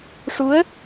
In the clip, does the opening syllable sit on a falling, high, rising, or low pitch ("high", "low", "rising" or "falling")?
rising